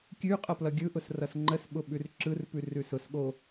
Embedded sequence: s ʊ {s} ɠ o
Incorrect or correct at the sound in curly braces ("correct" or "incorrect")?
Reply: correct